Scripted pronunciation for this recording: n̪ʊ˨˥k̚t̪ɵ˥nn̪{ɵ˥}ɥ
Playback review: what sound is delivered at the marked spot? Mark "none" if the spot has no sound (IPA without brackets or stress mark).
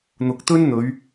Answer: ɵ˨˧